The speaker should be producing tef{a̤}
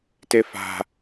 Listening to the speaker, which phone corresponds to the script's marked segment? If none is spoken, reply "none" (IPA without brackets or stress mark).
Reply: a̤